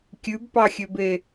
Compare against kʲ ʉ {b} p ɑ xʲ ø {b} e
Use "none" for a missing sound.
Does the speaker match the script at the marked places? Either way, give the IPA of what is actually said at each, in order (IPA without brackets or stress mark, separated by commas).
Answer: b, b